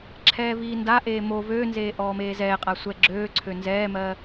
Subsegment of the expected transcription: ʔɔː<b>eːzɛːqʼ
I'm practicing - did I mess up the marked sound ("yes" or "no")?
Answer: yes